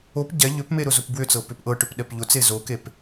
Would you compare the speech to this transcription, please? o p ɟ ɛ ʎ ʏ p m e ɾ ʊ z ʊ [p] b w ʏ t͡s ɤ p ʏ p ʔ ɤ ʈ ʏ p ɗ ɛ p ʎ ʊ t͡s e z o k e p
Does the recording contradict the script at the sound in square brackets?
no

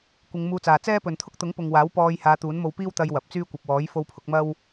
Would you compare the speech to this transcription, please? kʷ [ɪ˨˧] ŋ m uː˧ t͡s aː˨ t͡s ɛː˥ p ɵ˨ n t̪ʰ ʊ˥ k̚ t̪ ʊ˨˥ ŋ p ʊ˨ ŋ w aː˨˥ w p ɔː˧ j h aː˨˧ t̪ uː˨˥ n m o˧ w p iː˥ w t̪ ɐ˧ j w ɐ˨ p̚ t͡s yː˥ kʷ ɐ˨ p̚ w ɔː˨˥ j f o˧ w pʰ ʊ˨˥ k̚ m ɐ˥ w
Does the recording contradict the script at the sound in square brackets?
no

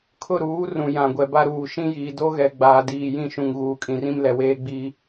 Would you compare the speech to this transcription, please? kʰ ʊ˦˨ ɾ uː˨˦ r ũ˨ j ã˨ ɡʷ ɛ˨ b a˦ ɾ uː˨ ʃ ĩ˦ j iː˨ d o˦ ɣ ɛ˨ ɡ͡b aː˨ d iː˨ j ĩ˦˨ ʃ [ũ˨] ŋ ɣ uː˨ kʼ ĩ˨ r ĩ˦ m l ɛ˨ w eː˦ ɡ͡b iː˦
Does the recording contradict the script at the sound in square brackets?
no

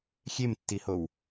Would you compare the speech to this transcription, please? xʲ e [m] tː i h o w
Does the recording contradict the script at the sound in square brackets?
no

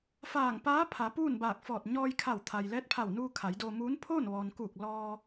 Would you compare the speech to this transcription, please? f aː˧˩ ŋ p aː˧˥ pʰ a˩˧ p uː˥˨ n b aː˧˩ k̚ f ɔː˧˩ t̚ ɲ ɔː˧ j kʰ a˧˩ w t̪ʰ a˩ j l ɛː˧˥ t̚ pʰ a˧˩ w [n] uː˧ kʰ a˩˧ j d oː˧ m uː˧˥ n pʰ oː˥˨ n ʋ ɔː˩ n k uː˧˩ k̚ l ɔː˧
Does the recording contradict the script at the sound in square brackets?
no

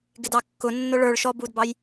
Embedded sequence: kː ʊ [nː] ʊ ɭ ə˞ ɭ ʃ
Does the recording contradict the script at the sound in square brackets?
no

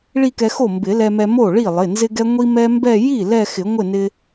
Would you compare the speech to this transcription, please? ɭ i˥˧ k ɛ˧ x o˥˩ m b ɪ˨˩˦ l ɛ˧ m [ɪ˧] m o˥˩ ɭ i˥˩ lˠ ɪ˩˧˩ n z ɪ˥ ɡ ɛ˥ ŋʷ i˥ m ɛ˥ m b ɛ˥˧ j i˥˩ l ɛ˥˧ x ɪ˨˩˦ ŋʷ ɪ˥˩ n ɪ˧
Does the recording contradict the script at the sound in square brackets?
yes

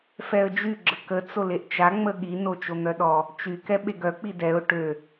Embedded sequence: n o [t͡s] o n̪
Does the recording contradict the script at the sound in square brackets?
yes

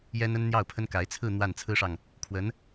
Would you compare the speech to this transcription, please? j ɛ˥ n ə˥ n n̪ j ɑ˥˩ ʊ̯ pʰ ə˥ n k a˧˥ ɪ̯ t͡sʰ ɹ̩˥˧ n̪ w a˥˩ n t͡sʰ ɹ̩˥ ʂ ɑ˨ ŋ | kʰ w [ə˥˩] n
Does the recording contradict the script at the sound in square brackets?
yes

